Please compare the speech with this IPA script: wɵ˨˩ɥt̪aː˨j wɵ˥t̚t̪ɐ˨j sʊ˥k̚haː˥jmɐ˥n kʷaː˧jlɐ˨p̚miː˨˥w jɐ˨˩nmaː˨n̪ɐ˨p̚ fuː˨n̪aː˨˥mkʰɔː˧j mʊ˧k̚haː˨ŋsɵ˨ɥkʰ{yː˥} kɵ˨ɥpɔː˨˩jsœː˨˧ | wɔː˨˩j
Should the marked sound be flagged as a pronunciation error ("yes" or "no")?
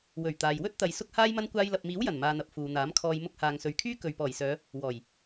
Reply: no